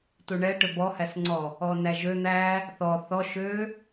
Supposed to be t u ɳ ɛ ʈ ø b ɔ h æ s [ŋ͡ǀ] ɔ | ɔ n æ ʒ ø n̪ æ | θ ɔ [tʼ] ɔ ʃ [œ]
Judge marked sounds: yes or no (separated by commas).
yes, no, no